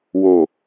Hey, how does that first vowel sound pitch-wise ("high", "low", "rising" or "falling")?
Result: low